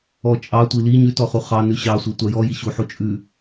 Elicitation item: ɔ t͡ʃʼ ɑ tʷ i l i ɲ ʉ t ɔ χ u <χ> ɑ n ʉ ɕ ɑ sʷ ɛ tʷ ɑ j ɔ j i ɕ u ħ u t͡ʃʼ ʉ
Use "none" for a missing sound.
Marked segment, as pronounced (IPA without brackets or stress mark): χ